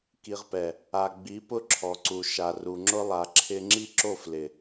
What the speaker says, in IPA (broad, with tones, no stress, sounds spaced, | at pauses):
k i˨ ʁ p ɛ˨ | a˨ ɡ͡b i˨˦ p ʊ˦ ǁʰ ɔ˨ ǀ u˨ ʃ a˨ r u˨ ŋ͡ǁ ʊ˦ lˠ a˨ ǁʰ ɪ˦ ŋ͡ǁ i˦ ǁ o˦˨ f l ɪ˨